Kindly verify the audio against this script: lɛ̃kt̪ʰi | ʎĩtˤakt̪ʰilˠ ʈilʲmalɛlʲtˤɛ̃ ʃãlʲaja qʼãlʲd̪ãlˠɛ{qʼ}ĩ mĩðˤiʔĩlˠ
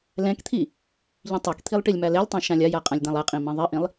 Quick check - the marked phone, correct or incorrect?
correct